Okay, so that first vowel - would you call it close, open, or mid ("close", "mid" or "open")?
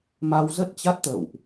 open